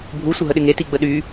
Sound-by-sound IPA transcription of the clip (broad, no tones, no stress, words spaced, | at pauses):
bʱu sʷəɦəɗɪŋe tiɡ͡bəɗy